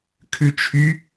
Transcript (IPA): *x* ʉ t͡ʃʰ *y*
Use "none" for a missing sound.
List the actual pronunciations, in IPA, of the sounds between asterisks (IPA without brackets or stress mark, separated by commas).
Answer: kʰ, y